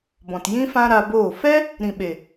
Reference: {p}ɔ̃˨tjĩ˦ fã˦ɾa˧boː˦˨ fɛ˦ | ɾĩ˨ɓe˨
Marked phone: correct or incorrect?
incorrect: b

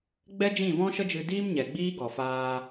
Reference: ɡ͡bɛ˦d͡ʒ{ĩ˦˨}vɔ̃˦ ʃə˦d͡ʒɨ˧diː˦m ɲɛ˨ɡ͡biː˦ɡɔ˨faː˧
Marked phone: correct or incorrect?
correct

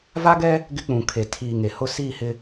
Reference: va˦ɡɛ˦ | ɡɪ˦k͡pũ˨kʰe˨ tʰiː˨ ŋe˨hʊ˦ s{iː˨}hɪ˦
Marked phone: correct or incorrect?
incorrect: iː˦˨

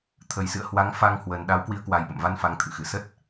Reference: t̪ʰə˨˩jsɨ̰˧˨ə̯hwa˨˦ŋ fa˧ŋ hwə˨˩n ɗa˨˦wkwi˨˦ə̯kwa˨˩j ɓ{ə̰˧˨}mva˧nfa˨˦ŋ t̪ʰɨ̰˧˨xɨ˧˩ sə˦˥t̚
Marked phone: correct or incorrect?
correct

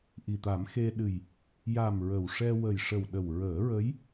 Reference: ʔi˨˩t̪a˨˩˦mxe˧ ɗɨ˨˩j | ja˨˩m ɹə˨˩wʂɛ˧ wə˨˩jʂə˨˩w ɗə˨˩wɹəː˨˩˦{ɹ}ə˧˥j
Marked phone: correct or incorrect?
correct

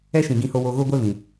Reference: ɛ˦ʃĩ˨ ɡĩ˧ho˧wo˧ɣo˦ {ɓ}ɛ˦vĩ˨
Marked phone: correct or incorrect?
incorrect: ɡʷ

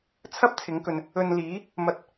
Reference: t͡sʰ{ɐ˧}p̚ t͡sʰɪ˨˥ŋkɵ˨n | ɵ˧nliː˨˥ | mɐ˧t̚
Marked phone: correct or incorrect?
incorrect: ɐ˥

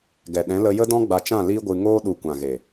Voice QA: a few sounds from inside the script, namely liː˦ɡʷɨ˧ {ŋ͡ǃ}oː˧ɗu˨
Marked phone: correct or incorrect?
incorrect: ŋ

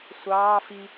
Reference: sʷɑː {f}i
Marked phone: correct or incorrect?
correct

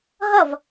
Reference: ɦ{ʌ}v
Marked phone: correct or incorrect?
correct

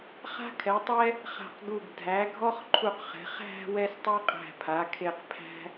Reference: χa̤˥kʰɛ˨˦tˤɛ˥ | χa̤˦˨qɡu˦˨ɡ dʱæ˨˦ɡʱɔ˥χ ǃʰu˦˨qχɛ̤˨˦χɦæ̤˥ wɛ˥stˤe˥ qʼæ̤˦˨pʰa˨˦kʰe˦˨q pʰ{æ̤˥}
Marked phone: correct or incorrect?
correct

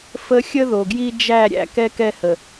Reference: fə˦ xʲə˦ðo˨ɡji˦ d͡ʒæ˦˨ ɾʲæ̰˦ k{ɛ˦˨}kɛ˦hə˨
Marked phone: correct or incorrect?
incorrect: ɛ˦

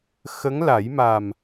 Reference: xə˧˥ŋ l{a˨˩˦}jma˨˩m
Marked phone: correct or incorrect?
correct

